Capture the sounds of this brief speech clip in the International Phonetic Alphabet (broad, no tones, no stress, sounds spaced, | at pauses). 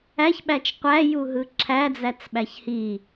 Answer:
æ ç ɓ æ t͡ʃ qʷ æ j u ɦ ɯ ǁʰ æ d͡z æ t͡s ɓ æ ç h i